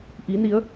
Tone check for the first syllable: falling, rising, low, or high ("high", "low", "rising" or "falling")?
rising